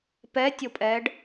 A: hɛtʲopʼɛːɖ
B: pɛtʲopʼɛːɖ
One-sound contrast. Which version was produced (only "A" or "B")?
B